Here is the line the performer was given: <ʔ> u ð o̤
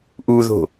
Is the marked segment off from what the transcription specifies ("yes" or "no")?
no